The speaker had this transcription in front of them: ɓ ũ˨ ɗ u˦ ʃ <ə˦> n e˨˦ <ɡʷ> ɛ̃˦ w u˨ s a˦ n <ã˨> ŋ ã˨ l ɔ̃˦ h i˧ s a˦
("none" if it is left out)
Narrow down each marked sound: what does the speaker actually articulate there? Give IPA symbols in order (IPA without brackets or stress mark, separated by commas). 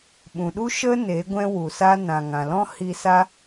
ə˦, ɡʷ, ã˨